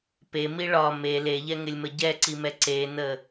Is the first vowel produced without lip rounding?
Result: yes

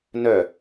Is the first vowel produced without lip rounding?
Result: no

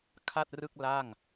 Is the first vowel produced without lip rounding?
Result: yes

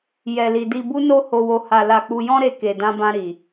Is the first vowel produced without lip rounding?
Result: yes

